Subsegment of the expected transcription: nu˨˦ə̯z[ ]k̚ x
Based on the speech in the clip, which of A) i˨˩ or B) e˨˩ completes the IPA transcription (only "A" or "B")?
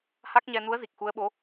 A